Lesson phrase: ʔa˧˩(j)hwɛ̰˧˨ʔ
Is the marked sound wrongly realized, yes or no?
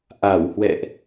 yes